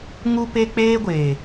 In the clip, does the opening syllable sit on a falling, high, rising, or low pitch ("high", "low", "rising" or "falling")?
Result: high